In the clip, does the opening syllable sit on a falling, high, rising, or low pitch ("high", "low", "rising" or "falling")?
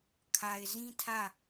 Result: low